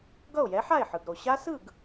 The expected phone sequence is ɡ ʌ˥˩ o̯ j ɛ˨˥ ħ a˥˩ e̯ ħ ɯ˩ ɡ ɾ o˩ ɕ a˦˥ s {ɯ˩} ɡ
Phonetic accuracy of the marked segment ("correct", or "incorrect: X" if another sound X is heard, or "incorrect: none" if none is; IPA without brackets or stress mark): incorrect: ɯ˥˩